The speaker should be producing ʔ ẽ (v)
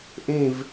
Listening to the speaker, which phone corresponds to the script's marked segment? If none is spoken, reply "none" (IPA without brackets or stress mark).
v